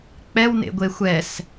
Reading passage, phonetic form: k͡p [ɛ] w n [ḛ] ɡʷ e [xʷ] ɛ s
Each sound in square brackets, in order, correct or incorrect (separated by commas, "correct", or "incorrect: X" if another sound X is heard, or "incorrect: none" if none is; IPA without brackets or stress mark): correct, correct, correct